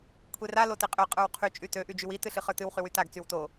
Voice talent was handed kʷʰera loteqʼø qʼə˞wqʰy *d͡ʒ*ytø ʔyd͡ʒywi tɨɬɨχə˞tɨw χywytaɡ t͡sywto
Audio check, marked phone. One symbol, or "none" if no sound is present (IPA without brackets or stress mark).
t͡ʃʼ